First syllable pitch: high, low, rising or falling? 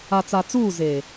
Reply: low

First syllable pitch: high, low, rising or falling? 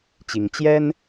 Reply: rising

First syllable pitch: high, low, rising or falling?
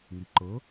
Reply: low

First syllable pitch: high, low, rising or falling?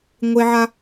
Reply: high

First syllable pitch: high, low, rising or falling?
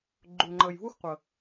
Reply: low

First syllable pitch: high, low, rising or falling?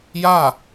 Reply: falling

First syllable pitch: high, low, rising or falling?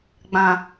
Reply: low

